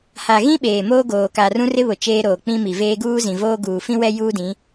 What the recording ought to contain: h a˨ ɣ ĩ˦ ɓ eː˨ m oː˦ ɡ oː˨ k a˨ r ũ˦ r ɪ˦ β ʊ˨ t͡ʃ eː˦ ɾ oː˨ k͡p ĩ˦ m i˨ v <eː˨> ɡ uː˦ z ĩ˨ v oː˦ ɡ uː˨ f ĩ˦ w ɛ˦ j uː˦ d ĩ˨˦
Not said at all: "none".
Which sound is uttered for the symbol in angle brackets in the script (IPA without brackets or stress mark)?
eː˦